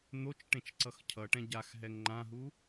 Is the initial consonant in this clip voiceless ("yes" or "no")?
no